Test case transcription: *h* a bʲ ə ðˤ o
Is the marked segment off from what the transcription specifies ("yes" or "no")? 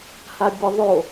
no